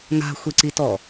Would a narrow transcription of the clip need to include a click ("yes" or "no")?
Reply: yes